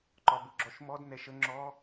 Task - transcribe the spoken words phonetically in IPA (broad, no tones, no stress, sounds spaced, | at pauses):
ǃ ɒ b ʊ ɡ͡ǁ ɔ ʃ m ɔ d n ɛ ʃ ə ŋ͡ǁ ɔ